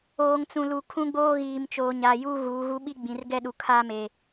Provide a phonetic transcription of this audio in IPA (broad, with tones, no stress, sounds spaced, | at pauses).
oː˨ ŋ t͡s ũ˨ l u˨ kʰ ũ˦ ɡ͡b oː˦ ɣ iː˨ m t͡ʃ oː˨ ɲ aː˨ j uː˦ ɣ uː˨˦ ɣ u˦ ɓ i˦ ɡ͡b ĩ˨ r ɡ ɛ˦ ɗ u˨ kʰ a˦ m e˨